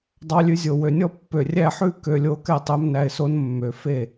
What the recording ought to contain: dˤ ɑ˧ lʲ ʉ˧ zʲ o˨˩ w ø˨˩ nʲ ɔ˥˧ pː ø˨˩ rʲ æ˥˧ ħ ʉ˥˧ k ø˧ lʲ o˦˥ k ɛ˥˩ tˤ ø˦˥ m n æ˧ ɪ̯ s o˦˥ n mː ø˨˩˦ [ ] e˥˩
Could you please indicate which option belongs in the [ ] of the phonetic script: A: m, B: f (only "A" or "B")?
B